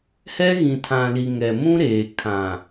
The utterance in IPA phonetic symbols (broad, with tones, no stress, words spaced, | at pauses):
hɛ˦ɣĩ˨tʰã˨li˨ ŋɛ˨mũ˦ɾeː˨ kʰã˨